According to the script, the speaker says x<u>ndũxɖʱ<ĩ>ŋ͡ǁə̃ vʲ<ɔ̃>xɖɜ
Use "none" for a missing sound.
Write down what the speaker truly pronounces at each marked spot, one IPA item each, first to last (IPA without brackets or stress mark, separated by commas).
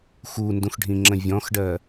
u, ĩ, ɔ̃